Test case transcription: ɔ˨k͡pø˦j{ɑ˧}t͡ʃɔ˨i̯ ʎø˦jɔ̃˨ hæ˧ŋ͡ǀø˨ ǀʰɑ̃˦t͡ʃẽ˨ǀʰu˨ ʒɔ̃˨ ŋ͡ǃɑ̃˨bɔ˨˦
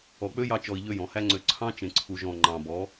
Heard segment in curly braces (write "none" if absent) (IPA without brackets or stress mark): ɑ˧